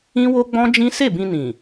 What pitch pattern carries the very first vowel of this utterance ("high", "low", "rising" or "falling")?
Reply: high